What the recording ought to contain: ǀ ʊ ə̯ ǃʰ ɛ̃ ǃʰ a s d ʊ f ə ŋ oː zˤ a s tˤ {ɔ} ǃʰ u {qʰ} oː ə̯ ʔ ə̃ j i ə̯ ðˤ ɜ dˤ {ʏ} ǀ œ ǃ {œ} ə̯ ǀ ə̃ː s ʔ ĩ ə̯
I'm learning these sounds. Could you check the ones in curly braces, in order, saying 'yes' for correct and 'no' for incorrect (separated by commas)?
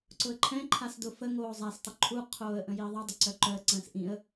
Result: no, yes, yes, yes